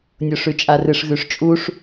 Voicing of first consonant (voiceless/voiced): voiced